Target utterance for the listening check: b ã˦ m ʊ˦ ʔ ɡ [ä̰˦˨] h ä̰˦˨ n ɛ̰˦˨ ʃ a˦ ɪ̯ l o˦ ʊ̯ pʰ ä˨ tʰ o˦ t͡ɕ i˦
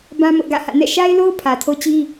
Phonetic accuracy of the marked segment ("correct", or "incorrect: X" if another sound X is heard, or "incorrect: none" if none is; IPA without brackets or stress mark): correct